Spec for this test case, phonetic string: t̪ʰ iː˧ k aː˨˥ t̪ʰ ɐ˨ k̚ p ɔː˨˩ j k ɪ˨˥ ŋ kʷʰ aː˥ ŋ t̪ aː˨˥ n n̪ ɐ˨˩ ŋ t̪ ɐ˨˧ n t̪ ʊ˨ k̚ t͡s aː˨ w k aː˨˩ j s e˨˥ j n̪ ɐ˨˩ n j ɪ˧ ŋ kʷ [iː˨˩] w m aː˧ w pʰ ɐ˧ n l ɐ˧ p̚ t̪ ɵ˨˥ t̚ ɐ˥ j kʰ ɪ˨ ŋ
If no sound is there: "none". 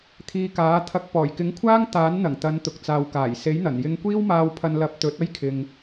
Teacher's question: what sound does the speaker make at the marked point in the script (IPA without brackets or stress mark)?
iː˥